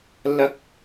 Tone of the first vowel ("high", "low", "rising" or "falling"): high